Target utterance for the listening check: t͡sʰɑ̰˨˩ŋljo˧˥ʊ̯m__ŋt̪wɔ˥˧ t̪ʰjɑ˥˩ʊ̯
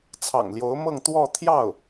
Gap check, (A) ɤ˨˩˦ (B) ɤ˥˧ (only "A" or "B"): B